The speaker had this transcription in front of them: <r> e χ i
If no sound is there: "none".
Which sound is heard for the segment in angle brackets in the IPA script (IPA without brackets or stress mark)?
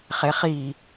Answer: χ